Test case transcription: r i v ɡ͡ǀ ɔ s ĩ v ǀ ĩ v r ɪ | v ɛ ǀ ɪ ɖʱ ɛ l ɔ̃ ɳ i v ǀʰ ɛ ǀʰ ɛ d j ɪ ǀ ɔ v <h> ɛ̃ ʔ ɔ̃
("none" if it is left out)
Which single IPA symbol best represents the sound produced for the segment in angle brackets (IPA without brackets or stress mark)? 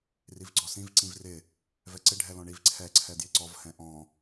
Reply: h